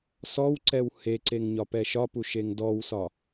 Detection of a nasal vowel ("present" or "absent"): absent